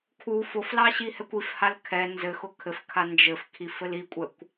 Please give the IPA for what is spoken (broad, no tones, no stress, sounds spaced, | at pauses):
kʰ u f ʊ f l ɑ ɕ i h ɛ kʷ i f h a l kʰ ɛ n z ɘ x ʊ kʰ ɘ f kʰ a n d͡ʒ ɘ f kʰ i f ɘ l i kʷʼ ɛ kʷ